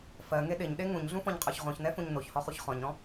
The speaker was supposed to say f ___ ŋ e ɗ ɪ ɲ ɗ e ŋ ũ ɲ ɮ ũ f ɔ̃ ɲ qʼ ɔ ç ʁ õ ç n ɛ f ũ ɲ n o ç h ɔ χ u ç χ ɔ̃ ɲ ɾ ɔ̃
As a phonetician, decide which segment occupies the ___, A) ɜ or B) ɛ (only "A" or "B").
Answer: A